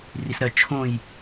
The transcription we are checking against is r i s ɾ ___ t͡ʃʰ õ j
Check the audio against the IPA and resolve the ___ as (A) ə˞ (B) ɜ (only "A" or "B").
B